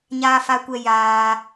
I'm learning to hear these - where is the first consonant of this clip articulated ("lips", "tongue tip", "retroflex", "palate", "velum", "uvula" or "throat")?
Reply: palate